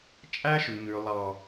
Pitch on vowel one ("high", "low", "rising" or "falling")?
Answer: high